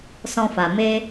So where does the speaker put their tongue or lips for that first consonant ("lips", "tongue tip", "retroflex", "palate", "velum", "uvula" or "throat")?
tongue tip